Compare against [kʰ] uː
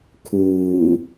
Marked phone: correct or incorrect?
correct